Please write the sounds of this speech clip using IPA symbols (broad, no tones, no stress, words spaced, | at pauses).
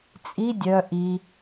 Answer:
t͡sʼi dʲœ ʔi